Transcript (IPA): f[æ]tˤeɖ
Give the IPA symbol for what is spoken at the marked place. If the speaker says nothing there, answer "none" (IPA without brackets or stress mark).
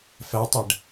æ